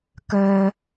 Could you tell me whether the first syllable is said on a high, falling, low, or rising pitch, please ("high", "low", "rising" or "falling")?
high